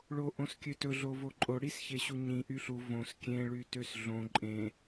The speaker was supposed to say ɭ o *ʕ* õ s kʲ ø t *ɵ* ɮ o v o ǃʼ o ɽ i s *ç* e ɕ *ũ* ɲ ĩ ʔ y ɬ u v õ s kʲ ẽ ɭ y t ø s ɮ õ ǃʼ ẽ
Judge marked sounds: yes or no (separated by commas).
no, yes, yes, no